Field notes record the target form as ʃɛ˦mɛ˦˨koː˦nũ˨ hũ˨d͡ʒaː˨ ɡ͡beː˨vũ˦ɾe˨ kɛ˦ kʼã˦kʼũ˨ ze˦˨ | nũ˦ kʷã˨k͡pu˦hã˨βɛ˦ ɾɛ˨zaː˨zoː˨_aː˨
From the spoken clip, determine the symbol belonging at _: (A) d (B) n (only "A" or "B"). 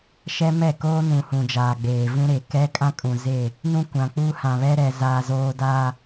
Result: A